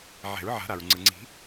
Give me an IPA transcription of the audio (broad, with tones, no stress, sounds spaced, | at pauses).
ʕ ɛ̤˨˩˦ ɹ ʕ a̤˨˩˦ ɾ a˩ ɹ ŋ͡ǀ ɯ˩ ŋ͡ǀ i̤˨˩˦